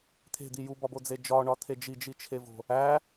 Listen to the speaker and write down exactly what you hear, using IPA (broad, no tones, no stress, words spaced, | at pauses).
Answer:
t̪ʰe̤d̪i jubɒbod͡ze d͡ʒɒɳɒt̪ʰe d͡ʒid͡ʒit͡ʃʰevo̤ | æ